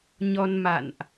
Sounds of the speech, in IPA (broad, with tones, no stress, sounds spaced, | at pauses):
ɲ ɔ˧ n m a̰˧˨ n ʔ